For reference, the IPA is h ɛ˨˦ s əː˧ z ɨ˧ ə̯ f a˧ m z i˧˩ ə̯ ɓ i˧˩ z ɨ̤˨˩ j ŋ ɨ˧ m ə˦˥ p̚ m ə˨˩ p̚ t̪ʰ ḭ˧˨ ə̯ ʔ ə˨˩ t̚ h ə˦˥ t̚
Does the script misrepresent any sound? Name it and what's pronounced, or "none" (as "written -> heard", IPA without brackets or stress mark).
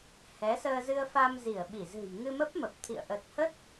none